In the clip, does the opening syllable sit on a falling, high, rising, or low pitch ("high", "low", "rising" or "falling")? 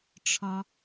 low